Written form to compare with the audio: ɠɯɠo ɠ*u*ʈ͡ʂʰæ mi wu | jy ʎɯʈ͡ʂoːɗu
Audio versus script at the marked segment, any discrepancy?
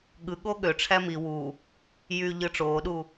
yes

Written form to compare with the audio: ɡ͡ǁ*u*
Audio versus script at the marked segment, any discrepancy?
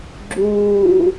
yes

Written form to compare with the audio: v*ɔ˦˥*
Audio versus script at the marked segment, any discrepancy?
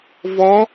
no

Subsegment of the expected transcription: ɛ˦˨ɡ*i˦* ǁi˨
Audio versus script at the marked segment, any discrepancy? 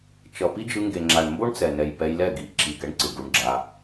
yes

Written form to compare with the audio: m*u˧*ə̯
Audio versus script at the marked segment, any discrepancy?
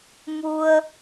no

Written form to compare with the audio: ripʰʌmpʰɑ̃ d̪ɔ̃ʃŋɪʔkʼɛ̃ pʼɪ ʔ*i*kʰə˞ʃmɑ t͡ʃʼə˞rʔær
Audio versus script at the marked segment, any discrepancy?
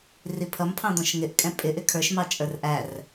yes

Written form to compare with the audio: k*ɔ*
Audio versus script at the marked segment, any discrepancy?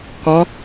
no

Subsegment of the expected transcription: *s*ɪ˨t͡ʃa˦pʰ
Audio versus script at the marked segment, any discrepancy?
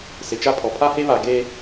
no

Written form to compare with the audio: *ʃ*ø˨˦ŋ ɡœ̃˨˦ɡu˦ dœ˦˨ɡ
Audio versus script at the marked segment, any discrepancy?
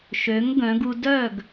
no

